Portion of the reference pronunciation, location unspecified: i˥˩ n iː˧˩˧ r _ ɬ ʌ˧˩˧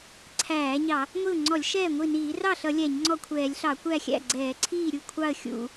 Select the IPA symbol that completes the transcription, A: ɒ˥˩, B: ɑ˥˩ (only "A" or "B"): B